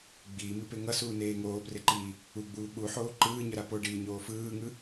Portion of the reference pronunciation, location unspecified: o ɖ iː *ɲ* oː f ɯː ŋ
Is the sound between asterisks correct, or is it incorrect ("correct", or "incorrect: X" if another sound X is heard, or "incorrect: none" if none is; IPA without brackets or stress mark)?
correct